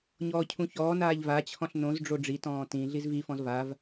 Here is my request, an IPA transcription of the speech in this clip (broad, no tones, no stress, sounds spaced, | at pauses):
ɲ ɔː cʰ ũ ç ɔː n aː ʎ v a t͡ɕʰ ɔ̃ ɬ n õ z ɖ͡ʐ o ɖ͡ʐ i t ɔ̃ː t ĩ ɮ i z v i f ɔ̃ z v a v